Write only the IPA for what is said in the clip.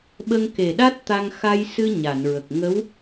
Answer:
ɓ ə˧ ŋ k e˨˩ ɗ a˦˥ t̚ t̪ a˧ ŋ x a˧ j s ɨ˧ ɲ a˨˩˨ n ɹ ə˨˩ k̚ ŋ ə˧˥ w

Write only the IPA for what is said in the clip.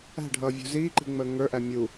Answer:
æ̤ ɖʱ ʌː vʲ ṳ z iː ǃ i̤ ŋ͡m əː ŋ ə˞ ʔ æ mʲ u

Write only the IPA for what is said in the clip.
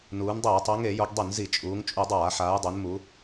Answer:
n uː˩˧ n dˤ eː˧˩˧ tˤ ɤ˩˧ ŋ e˧˩˧ j o˩˧ ɡ dˤ y˧˩˧ n z i˧˩˧ t͡ʃʼ uː˩˧ ŋ t͡ʃʼ u˧˩˧ dˤ aː˧˩˧ ħ aː˩˧ j dˤ e˩˧ n m u˩˧

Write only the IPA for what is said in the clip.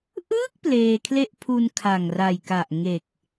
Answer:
ʔ ɯː˥˩ k̚ p l eː˧ kʰ l e˥˩ ʔ pʰ u˧ n kʰ a˨˩ ŋ r a˨˩ j k a˨˩ ʔ ŋ e˨˩ k̚

